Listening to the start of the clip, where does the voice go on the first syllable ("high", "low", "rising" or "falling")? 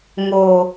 low